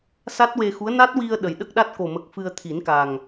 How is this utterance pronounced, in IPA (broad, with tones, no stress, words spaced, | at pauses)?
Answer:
sa˦˥t̚we˧xu˧˥ə̯ na˦˥t̚wi˧ə̯ ɗə˨˩jɗə˦˥k̚ɗa˦˥t̚ ko˨˩mə˨˩k̚ fɨ˧ə̯t̪ʰi˨˩˦nka˨˩ŋ